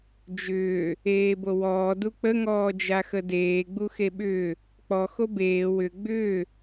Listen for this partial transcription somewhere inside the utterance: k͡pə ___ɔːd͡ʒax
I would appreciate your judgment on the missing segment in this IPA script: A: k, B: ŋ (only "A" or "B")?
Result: B